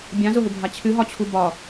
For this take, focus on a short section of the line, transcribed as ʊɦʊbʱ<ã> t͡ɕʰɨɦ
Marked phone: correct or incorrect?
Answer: incorrect